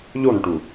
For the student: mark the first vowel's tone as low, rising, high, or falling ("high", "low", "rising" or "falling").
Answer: falling